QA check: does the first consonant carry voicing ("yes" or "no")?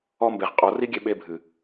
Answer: yes